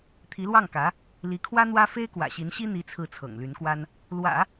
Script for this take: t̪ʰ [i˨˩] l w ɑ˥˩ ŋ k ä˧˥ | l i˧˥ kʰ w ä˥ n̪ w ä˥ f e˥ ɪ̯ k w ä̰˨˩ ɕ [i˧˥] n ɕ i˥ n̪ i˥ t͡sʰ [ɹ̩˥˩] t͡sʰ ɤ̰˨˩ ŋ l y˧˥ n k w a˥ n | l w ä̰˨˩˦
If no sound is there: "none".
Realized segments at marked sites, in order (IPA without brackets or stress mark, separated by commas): i˧˥, i˧˥, ɹ̩˥˩